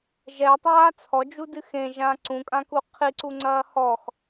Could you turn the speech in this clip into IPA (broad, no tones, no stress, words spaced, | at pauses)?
ʒɛtˤaː t͡sʰɔd͡ʒudɨ xẽʒã ǀũkʼãku qʰiǀuŋ͡ǀɐː hɔx